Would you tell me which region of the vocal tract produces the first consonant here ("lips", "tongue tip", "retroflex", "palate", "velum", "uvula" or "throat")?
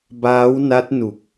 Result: lips